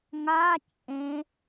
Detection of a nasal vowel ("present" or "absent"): present